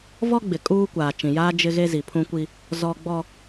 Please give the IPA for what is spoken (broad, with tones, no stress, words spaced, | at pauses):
vɔ˦ɡ͡bɪ˨ kʼuː˦kʷaː˨ t͡ʃĩ˨jaː˦ d͡ʒɪ˦ɣe˦ zi˨pʰũ˦kʷi˦ | zɔ˦ ɡ͡bɔ˦